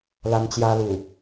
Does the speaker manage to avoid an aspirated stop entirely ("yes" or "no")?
yes